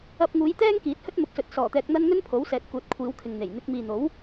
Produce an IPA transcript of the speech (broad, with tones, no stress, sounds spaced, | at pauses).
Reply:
ɐ˧ p̚ ŋ uː˨˧ j t̪ ɛː˥ ŋ k iː˨˥ t̚ h ɵ˥ t̚ m ʊ˨˥ k̚ s ɵ˨˥ t̚ s ɔː˨˩ t̪ ɛː˧ k̚ n̪ ɐ˥ n ŋ ɵ˥ n pʰ o˨˥ w s ɛː˨˥ t̚ k uː˨˥ t̚ kʷʰ iː˨˧ w kʰ ɪ˨ ŋ n̪ e˨˩ j n̪ ɪ˧ k̚ m iː˨ n̪ o˨˥ w